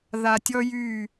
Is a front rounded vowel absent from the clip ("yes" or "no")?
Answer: no